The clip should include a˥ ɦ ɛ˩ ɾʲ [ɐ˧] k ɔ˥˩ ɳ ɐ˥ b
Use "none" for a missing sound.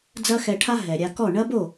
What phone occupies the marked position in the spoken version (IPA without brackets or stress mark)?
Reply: a˧